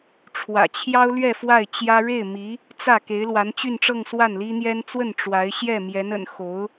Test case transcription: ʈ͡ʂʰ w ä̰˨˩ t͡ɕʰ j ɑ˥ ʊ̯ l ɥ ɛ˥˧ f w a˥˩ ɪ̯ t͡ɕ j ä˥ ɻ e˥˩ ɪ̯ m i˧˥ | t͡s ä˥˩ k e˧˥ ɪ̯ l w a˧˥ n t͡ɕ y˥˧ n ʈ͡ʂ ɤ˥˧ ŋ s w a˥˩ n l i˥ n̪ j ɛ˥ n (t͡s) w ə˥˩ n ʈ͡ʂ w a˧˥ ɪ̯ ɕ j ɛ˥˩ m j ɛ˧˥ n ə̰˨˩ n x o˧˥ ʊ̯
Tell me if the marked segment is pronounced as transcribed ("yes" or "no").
yes